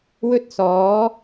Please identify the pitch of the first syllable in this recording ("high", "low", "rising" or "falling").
high